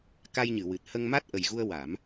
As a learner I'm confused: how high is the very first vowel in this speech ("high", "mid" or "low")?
low